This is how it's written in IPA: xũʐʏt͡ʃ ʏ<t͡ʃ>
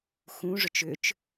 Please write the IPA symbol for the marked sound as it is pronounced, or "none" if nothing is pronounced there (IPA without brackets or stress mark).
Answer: t͡ʃ